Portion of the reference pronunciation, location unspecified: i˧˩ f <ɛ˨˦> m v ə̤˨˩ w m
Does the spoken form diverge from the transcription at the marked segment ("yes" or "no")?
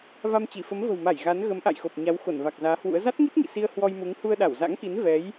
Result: yes